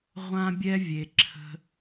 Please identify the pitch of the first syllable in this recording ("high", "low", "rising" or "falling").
high